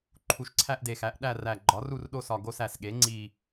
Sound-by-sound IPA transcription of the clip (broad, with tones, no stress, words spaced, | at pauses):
ǃʰu˨˩ʃǀʰæ˦˨ʔde˨˩xæ˩˥ʔ ɗæ˦˨ræ˨˩ ɡ͡ǃɒ˩˥ru˦˨rɗo˦˨sɒ˨˩ ɡo˦˨sæ˨˩sɠe˩˥ ŋ͡ǀi˨˩